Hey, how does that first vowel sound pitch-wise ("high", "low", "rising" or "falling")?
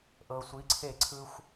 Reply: low